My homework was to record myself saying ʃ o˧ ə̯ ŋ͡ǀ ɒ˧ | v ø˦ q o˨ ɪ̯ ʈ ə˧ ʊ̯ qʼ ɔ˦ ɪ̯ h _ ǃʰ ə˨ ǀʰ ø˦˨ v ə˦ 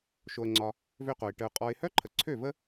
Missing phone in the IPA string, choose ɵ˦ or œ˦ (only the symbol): œ˦